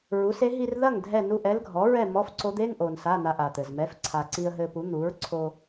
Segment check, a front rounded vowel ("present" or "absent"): absent